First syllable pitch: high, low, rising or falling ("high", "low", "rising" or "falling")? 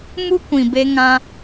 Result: high